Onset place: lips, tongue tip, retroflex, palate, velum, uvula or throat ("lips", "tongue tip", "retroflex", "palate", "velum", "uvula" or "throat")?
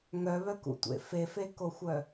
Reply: velum